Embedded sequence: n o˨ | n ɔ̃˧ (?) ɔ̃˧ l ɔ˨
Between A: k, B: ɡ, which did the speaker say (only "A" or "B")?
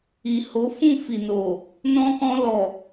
A